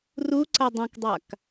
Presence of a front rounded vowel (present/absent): present